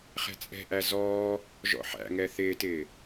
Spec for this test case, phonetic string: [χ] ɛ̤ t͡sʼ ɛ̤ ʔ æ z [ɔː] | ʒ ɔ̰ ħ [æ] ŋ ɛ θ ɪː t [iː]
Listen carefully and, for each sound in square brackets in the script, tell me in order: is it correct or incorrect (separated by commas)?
correct, correct, incorrect, incorrect